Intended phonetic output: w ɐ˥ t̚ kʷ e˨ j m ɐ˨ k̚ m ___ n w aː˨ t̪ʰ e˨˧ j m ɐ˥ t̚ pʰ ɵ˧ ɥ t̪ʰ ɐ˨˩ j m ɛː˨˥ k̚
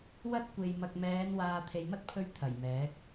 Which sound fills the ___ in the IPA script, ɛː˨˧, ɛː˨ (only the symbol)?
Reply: ɛː˨˧